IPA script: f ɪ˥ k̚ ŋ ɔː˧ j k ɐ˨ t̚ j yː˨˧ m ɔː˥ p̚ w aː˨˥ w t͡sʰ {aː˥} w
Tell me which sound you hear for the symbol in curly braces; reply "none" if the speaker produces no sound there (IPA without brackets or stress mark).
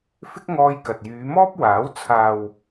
aː˨